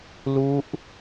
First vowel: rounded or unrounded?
rounded